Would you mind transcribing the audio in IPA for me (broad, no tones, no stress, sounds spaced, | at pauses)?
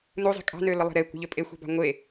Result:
n u zˤ i̤ kʼ ɑ̤ n ø l ə lˠ ɛ̤ ɾ e kʷ ə̤ ʎ ø pʼ e xʷ ɛ̤ b ɑ̤ ŋʷ e